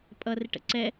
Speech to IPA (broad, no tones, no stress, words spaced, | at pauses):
pʼʌrɪʈə̰ ǀɛ